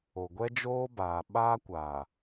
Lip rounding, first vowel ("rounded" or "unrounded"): rounded